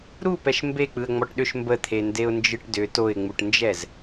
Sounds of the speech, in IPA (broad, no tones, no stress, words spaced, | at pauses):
ɾupɛʃ mbek͡pɯə̯ ŋ͡mɔʈɗʏʃ mbət̪ʰe ndeʊ̯nd͡ʒɯʈdʏ toɪ̯ŋ͡muʈnd͡ʒɛz